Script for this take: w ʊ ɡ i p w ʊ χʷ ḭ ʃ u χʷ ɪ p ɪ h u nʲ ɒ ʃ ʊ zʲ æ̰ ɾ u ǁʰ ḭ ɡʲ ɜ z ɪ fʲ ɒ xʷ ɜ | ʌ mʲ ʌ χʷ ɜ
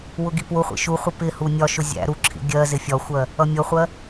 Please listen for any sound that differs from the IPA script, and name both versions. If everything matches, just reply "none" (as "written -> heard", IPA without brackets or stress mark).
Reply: none